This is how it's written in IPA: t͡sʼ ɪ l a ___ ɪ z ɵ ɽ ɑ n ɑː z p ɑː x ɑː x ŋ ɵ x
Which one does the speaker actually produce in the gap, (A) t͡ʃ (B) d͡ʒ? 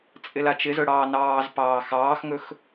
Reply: A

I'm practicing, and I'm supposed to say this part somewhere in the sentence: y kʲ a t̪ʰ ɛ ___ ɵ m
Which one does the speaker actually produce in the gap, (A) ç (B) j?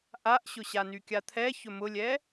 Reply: A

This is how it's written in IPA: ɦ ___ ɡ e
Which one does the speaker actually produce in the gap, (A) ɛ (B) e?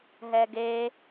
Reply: A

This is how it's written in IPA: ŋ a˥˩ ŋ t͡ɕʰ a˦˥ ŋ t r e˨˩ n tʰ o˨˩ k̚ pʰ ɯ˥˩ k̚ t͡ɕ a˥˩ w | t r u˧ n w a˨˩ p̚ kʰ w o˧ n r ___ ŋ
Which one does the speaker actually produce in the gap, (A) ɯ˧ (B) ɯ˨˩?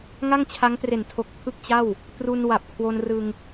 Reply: A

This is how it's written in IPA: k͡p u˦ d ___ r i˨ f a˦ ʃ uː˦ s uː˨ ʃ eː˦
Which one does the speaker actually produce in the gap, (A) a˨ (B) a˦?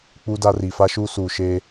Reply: B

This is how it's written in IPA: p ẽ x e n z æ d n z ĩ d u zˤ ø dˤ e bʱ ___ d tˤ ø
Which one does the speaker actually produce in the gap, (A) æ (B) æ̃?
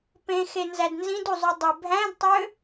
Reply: B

